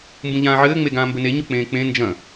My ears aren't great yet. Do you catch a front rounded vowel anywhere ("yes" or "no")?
no